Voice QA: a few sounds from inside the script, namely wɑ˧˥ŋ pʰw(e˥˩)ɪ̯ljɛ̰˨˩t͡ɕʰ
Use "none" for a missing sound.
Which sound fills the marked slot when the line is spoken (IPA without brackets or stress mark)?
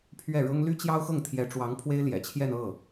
e˥